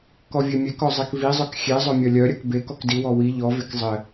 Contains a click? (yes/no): no